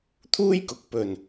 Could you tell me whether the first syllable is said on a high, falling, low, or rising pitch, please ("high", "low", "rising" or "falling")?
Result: high